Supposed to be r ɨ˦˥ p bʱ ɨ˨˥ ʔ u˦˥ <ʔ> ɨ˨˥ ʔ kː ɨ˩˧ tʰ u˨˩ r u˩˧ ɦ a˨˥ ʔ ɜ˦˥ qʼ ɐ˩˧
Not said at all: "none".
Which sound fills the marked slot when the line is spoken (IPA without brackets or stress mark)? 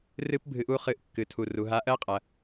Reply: χ